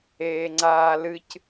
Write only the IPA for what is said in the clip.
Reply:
eːŋ͡ǀaːlɨc

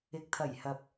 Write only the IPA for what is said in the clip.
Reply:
ɪ˨k̚t̪ʰɐ˨˩jhɐ˨p̚

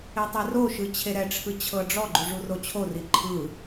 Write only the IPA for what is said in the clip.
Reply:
etˤɛroʃɯ t͡ɕʰeɾɛʈ͡ʂʰɯ t͡ɕʰɤɖ͡ʐɔɡ͡ǃu ʐurot͡ɕʰori ǃʰɯ

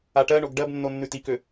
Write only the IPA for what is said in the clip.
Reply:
aʈɜɳoɡ ɖɜbnːo nːʉtikø

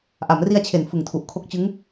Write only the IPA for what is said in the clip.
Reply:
ʔa˩˦mri˧a̯t͡ɕʰe˩˦n fɯ˨˩ŋtʰu˨˩ʔ kʰo˦˥k̚t͡ɕɯ˦˥ŋ

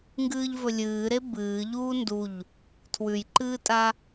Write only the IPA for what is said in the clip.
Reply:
ŋɡɨːʎvɵlʲɨːɾe bɨː ʎuːnduʎ | tʰwʉjǃɨːtʼa

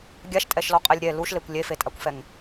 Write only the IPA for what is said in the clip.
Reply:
ɡʲaʃtʼɛʃlɔqʼɛlʲ ɾʲɛ luʃlekʷ lʲefetʼakʷfɛŋ

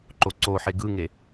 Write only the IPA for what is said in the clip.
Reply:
ǃoǀoħe ɡɯŋe

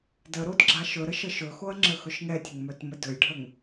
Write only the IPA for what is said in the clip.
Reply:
dəɾod ɡ͡ǁaʃɵɾə ʃəʃɵxoɐ̯ ŋ͡ǁəxɵʃŋɛtʲəŋ mœtmədɵjɖʱəŋ

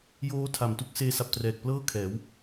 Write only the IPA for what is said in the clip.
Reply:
joː˦˥tʰa˨˩m tu˦˥k̚seː˦˥sa˨˩p̚trɛː˨˩k̚ plɤː˥˩kʰɛː˩˦w

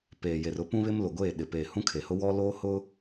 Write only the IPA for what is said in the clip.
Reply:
peː˨je˨rʊ˦ pũ˦βɪ˦mlʊ˨ɡʷeː˦˨ ɗɪ˨peː˨ hũ˦kʰe˨hʊ˦ wɔ˦ loː˦hʊ˦

